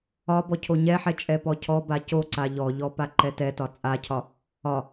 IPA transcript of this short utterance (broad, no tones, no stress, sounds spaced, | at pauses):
ɒ b ɔ cʰ o ɲ ɛ ħ ɛ t͡ʃʼ ɛ p ɔ cʰ ɔ b a c o ǀ a ʎ ɔ ʎ ɔ p a ǃ ɛ t ɛ t ɒ t͡sʼ a cʰ ɒ | ɒ